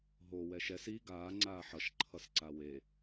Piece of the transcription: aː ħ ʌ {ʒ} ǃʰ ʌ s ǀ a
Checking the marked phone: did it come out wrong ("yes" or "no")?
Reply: yes